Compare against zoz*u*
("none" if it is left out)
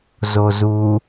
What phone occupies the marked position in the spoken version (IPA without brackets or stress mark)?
u